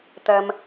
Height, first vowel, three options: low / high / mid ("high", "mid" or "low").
low